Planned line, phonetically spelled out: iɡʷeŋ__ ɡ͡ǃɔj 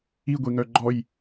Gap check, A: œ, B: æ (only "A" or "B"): A